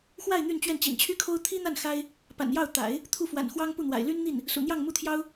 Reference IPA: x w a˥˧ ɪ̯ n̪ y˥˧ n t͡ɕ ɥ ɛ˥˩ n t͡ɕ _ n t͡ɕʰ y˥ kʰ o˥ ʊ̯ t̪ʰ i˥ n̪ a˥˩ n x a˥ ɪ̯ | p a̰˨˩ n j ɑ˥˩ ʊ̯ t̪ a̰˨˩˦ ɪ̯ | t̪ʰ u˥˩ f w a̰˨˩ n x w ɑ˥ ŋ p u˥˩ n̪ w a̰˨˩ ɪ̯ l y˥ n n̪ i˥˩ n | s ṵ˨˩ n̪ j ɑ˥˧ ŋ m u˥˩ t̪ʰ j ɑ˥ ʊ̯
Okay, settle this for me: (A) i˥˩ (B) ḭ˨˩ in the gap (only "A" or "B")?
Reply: B